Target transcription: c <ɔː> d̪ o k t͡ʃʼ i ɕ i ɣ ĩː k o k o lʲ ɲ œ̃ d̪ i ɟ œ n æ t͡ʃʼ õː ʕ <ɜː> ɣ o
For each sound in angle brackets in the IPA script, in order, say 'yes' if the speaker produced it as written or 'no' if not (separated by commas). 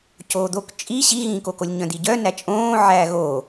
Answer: no, no